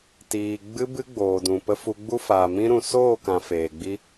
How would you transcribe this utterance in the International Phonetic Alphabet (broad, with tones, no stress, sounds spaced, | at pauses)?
t iː˨ ɡ͡b ɨ˧ b ɨ˦ ɡ͡b oː˨ d ũ˨ p ə˧ f u˧ ɡ͡b u˦ f aː˨ m ĩ˦ ɾ ũ˨ s oː˦˨ k ã˨ f eː˨ ɡ͡b i˦